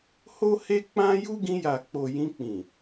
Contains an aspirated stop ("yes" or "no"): no